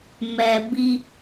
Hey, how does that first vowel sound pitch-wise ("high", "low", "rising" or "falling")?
low